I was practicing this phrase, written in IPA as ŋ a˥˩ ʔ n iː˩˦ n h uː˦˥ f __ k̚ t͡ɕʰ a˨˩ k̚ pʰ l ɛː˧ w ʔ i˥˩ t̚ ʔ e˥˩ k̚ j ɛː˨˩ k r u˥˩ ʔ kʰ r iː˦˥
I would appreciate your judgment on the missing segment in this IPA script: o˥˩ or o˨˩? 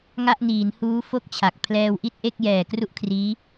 o˥˩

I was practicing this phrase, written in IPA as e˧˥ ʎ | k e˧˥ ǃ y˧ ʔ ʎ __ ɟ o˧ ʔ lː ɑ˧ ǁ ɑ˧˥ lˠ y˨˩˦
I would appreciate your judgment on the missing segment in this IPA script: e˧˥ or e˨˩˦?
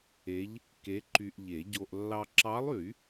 e˨˩˦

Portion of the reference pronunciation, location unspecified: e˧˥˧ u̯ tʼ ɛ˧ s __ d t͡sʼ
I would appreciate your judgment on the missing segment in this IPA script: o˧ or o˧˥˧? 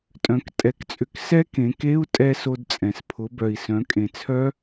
o˧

